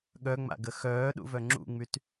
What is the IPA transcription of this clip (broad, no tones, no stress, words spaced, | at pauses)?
ɠœŋ͡ma̰ɡə xœːɗṵvœ ŋ͡ǁṵŋ͡myt